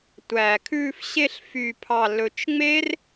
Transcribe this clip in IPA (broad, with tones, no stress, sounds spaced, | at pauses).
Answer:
tʷ æ˨ kʰ ʉ˧ f ɕ e˧ ɬ f y˨ pʰ ɑ˨ l ɵ˨ t͡ʃ ŋ͡m e˦ r